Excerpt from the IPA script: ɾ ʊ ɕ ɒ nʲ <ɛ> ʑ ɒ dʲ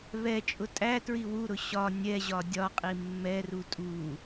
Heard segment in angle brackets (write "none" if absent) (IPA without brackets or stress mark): ɛ